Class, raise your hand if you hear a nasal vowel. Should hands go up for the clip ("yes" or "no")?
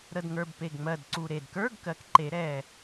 no